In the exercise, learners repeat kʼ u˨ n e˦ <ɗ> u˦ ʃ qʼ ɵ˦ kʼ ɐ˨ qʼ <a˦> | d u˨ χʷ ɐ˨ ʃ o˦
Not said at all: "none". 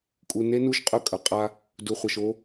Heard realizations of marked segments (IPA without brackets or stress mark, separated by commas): n, a˦